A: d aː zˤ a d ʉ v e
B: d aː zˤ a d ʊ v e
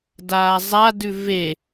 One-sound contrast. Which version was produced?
A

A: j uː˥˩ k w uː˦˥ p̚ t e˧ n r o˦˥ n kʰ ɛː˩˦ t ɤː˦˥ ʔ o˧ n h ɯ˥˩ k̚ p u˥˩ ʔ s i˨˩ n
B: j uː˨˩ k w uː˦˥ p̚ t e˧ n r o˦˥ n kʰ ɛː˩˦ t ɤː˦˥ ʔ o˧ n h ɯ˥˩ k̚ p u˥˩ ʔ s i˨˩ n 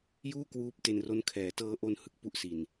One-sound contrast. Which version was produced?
A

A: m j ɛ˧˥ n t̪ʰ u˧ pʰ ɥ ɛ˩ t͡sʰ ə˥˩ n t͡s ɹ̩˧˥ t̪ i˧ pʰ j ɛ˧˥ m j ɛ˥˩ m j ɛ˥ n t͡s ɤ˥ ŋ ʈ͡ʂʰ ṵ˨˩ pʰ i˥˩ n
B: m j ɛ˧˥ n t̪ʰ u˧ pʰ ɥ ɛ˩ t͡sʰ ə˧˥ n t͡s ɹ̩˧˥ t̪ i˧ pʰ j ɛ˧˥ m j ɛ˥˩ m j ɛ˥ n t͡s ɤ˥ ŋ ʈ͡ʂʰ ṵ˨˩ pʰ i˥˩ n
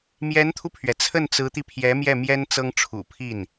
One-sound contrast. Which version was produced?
A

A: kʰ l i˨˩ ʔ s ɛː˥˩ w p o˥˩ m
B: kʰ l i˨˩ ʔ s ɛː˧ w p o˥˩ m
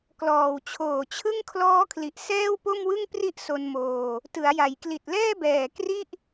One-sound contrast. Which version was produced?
A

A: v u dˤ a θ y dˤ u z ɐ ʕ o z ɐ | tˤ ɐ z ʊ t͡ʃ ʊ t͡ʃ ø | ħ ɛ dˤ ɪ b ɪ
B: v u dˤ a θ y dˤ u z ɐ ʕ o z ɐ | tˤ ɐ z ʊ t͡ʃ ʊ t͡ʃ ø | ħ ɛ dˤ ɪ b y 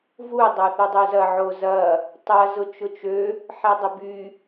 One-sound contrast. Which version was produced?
B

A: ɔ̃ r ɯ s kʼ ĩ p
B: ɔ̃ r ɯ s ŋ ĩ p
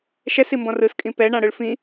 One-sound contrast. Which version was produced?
A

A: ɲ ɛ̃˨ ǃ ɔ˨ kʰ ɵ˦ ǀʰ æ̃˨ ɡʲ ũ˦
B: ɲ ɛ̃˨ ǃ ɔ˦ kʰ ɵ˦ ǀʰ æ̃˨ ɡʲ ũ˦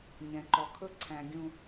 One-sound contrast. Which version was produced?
A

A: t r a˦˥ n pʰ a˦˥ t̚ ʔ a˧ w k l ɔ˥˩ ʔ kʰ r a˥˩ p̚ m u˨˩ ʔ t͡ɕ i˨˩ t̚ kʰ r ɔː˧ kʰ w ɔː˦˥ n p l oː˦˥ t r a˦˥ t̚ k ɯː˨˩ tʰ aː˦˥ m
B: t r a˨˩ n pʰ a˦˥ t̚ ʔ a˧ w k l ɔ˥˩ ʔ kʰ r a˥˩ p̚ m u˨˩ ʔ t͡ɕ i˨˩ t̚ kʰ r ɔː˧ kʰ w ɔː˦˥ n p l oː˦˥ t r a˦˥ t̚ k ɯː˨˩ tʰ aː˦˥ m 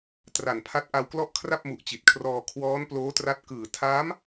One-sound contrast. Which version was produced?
B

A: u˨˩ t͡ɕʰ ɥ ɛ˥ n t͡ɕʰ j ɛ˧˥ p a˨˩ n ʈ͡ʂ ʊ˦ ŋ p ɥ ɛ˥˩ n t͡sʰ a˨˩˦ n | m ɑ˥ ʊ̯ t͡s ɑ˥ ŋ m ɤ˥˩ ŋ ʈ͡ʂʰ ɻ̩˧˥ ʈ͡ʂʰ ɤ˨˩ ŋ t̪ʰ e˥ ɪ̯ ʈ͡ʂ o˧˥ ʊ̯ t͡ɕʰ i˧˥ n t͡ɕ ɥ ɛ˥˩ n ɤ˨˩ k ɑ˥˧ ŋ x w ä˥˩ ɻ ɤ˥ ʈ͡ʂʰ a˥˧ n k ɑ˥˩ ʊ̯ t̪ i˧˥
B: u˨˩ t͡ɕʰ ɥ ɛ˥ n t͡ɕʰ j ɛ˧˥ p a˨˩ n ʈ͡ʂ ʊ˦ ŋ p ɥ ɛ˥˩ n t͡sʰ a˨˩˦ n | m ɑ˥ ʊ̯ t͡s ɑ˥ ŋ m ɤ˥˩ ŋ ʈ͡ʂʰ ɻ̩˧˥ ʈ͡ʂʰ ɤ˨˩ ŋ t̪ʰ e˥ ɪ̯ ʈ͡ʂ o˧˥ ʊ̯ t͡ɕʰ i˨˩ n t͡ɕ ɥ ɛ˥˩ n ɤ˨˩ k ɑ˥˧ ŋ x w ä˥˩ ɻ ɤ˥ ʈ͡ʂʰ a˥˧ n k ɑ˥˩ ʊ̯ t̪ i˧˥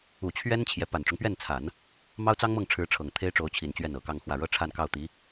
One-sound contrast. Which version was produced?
B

